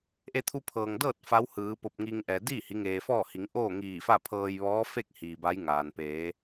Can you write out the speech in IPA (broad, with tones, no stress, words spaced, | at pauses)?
ʔe˧t̪ʰu˧pʰɤː˩ŋdɤː˥˨t̚ fa˧˥whɯː˩˧po˧˩p̚ ŋiː˧ŋʔɛː˩ diː˥˨hi˩˧ ŋeː˩fɔː˥˨hi˩˧ŋ ʔoː˥˨ŋiː˧˩fa˥˨pʰɤː˧j ʋɔː˧˥fe˥˨k̚ hiː˩ba˧˥jŋaː˩n peː˩˧